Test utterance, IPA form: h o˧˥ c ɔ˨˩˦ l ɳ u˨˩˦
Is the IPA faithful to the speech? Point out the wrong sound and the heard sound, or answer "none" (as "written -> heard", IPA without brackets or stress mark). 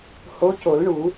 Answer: ɔ˨˩˦ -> o˨˩˦